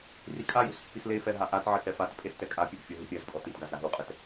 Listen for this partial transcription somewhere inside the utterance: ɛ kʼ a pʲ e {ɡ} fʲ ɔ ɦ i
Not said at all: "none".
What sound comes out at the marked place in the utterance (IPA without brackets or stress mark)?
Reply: ɡ